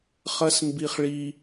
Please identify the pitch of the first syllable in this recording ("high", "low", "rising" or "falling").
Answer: high